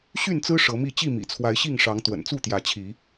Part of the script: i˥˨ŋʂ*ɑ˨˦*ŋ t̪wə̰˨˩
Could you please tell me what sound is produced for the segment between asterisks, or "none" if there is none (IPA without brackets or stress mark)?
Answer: ɑ˨˦